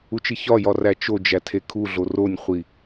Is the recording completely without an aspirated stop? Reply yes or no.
no